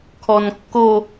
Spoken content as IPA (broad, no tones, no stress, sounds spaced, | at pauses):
kʰ ɔ n kː o